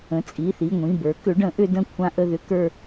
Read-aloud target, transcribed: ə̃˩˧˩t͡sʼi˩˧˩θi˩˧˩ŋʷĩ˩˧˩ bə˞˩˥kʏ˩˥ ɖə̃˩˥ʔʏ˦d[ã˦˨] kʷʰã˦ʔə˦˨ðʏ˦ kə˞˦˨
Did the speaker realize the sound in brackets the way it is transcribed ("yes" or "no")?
no